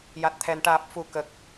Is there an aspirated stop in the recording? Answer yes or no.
yes